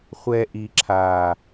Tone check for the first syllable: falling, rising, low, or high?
high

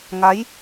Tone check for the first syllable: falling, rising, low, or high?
rising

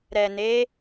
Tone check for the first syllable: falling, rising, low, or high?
low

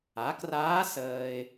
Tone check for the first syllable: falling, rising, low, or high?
rising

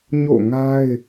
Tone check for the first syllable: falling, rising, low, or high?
falling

